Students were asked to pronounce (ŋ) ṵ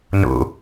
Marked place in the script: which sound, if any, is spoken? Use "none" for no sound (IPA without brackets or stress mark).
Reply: n